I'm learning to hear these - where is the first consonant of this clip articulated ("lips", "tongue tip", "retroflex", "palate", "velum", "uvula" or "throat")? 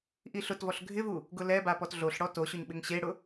throat